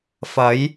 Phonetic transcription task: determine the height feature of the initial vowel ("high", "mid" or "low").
low